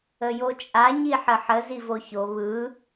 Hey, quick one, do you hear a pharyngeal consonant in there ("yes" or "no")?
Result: yes